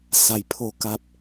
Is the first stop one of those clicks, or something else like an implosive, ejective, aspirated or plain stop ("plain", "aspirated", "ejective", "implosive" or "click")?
aspirated